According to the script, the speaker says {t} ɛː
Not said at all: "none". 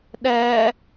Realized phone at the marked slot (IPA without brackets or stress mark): ɗ